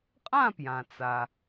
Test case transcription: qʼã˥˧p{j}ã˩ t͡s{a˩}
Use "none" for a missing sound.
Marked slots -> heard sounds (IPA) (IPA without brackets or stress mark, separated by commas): j, a˩